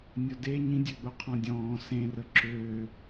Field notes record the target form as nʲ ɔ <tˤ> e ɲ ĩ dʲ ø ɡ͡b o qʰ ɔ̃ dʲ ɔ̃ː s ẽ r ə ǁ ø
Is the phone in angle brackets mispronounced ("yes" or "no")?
yes